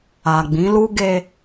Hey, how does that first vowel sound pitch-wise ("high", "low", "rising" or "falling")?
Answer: low